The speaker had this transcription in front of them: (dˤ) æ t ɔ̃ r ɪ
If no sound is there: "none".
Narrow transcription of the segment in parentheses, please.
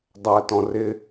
dˤ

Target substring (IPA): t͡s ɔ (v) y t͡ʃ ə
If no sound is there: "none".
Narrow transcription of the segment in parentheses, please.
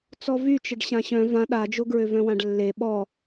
v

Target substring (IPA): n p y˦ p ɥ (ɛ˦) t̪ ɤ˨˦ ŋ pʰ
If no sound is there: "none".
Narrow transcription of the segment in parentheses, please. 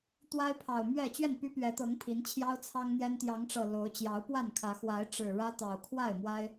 ɛ˨˦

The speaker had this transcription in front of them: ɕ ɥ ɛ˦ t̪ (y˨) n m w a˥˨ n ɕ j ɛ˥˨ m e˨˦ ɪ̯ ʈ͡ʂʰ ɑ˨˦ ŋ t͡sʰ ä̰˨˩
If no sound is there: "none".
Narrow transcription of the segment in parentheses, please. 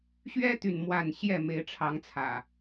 y˨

